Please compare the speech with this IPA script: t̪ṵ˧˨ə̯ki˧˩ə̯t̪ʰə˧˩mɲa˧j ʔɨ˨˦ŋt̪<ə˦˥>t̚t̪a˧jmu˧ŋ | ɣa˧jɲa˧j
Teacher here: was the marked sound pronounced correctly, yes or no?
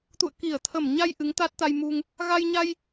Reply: no